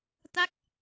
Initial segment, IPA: t̪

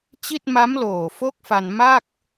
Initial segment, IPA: t͡ɕ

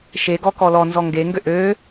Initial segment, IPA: ʃ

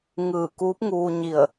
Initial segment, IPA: ŋ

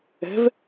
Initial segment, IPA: ɛ̤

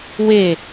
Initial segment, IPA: w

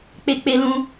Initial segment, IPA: k͡p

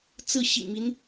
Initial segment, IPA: t͡s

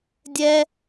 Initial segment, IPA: dʲ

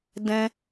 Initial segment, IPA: d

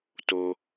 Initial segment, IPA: t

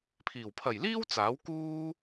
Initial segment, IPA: pʰ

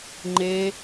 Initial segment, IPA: ŋ͡ǃ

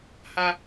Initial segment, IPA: h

